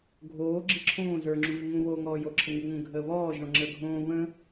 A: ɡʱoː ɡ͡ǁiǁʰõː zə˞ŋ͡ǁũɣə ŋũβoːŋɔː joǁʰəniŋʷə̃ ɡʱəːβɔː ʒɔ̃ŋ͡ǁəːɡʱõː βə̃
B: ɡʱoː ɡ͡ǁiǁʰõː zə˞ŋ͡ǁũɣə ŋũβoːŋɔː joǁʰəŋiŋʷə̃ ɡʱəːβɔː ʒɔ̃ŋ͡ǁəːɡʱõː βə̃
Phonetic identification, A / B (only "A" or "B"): B